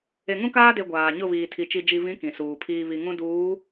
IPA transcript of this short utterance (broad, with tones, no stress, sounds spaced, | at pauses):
e˨ ŋ ũ˦ k aː˦ d e˨ ɡʷ aː˨ ɲ ʊ˦˨ β iː˨ tʰ i˨ t͡ʃ i˨ d͡ʒ i˨ v ĩ˨˦ k ĩ˨ s uː˨ pʰ iː˦ β i˨ ŋ ũ˦ d uː˨˦